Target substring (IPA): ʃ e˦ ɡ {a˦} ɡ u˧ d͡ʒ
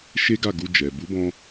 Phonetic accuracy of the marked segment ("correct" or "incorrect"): incorrect